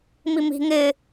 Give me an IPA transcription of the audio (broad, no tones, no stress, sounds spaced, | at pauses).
m i m i̤ ŋ ɪ